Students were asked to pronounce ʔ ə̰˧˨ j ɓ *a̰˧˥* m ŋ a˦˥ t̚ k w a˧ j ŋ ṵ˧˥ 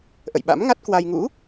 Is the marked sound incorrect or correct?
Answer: correct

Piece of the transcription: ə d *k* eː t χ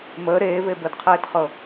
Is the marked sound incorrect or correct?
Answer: incorrect: qʰ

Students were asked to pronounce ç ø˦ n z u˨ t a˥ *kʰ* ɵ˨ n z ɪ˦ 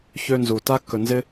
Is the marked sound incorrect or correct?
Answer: incorrect: k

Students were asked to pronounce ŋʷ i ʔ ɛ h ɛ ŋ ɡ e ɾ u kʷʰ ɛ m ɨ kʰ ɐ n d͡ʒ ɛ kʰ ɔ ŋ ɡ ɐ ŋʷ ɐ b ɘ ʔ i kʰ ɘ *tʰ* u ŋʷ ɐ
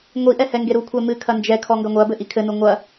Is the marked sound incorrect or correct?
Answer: incorrect: n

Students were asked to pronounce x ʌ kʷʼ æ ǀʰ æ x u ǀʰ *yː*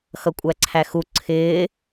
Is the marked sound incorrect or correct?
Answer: incorrect: ɪː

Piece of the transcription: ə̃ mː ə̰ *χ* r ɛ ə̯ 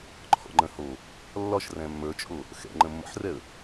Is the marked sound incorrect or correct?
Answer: incorrect: ħ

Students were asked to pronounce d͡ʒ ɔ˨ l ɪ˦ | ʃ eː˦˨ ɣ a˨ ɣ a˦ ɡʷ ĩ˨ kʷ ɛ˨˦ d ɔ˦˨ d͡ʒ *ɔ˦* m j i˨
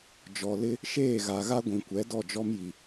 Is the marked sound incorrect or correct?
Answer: correct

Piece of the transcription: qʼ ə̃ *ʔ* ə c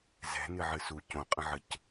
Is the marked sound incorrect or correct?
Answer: incorrect: ʕ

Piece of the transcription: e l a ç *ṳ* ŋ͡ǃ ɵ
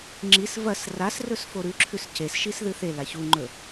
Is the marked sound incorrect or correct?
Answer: incorrect: u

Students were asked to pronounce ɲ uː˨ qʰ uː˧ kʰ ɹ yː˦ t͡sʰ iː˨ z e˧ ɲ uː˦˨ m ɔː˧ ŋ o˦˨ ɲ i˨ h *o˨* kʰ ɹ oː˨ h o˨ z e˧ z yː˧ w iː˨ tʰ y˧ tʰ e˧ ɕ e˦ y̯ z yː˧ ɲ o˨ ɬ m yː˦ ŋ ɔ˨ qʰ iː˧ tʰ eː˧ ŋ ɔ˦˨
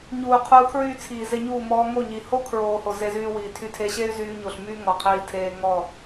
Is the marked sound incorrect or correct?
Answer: incorrect: o˦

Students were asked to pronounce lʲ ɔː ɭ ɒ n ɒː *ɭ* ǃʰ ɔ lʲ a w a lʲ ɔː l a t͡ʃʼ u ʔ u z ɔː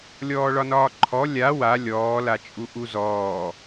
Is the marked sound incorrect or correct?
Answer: incorrect: none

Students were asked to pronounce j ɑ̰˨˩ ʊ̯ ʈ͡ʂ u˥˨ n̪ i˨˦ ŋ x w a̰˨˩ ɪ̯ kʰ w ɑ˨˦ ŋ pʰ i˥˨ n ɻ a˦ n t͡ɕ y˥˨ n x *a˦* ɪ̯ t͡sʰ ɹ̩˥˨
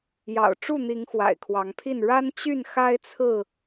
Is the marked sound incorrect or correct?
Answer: correct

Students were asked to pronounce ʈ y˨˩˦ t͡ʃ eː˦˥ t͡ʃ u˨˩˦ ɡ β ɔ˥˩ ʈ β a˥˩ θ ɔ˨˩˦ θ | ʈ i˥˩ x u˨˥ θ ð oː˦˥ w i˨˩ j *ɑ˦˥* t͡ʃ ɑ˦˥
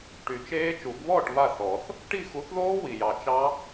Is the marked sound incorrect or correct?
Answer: incorrect: ɑ˨˩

